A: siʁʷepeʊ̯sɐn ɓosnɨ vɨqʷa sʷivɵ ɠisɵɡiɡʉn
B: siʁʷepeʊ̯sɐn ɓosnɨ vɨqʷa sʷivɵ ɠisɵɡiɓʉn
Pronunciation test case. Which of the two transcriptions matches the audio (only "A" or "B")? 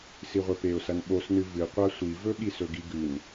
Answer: A